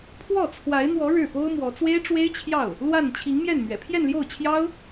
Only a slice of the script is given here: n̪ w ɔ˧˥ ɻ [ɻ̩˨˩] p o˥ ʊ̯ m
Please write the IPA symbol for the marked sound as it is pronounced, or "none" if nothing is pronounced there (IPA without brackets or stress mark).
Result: ɻ̩˥˩